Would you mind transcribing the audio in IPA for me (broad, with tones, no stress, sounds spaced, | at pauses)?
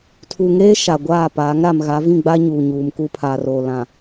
tʰ u˨ ŋ eː˦ ʃ a˨ ɡʷ aː˦˨ p aː˨˦ ŋ ɾ a˨ m ɣ a˨˦ v ĩ˦˨ ɡ͡b a˦ ɲ uː˨ ɲ uː˨ m k u˦ pʰ a˨ r o˨ l ã˨